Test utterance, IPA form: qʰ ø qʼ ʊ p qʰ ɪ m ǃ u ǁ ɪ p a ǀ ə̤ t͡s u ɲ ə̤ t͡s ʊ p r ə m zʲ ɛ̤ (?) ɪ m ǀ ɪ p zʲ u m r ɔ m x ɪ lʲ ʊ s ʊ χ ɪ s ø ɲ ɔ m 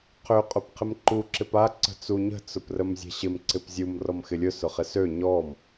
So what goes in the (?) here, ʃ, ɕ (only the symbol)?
ɕ